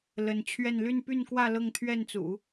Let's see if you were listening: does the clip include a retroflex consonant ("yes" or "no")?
no